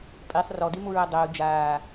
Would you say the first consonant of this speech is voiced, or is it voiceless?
voiceless